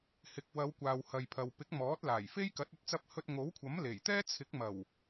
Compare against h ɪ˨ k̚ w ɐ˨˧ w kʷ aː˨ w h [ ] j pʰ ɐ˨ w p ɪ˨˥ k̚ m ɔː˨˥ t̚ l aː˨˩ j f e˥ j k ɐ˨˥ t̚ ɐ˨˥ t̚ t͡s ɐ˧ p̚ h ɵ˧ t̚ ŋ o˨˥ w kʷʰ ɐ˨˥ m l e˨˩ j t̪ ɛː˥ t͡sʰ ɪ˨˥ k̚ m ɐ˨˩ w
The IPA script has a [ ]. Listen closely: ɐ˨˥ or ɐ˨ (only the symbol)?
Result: ɐ˨